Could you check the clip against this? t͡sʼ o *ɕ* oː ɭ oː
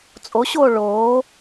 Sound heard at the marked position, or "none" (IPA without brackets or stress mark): ɕ